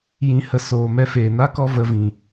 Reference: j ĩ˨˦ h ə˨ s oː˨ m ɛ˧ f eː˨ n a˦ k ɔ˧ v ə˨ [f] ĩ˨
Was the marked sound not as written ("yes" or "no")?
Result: yes